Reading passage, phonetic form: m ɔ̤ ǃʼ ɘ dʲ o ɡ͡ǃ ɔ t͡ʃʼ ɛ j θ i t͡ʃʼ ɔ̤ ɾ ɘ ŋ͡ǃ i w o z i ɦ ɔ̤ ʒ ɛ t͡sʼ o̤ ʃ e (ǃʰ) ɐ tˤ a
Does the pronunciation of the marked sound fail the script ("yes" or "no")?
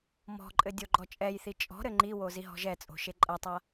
yes